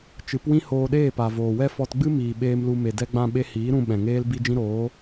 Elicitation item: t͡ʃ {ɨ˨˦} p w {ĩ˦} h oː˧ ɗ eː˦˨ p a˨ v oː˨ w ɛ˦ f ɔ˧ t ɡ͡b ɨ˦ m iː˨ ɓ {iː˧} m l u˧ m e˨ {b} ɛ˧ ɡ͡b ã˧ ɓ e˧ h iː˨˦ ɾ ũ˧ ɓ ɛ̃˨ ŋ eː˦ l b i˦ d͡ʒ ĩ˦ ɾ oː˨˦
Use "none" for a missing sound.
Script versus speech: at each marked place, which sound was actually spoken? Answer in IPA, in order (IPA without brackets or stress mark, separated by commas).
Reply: ɨ˨˦, ĩ˦, eː˧, d